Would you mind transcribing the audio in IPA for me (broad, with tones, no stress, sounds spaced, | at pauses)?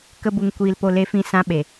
k ə˦ b u˧ ŋ kʷ iː˦ l p o˦ l e˦ f ĩ˦ s ã˦ ɓ e˨